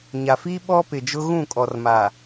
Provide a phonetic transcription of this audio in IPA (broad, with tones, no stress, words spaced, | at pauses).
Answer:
ɲa˨fiː˦ ɓɔ˦pɪ˨d͡ʒʊ˦ ɣũ˦˨kʼɔ˨rma˨